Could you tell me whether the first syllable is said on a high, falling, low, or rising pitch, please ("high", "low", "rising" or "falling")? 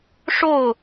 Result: falling